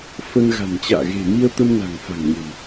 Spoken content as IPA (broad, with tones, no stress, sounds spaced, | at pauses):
f ə˧ n ɣ a̤˨˩ n t͡ɕ a̰ː˧˨ ɣ e̤˨˩ m i˧ ə̯ t̪ ə˧ m n a̤˨˩ ŋ f a̤˨˩ ŋ ɲ ə̤˨˩ m